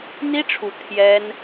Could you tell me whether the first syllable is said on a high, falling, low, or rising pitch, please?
high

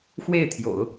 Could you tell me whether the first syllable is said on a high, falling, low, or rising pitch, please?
falling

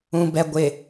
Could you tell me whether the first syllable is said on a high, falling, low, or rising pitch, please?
low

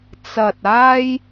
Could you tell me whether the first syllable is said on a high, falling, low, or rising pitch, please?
low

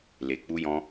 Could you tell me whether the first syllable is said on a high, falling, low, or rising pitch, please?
low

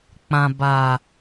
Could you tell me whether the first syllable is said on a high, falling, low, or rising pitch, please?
low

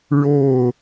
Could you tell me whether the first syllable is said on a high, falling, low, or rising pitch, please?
falling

